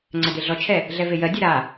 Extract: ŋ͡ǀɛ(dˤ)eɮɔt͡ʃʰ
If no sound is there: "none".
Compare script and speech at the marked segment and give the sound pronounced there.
d̪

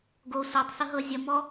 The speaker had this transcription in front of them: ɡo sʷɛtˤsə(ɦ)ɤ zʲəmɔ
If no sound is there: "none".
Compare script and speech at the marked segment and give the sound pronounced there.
ɦ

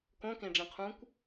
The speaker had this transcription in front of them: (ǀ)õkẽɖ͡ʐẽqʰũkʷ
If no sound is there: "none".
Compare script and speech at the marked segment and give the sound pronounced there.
k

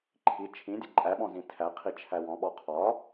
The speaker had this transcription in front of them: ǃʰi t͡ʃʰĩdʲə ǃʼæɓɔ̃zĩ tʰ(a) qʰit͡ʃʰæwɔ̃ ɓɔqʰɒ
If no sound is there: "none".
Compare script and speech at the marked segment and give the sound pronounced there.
æ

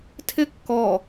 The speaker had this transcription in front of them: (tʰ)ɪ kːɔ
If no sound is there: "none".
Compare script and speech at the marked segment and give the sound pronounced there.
tʰ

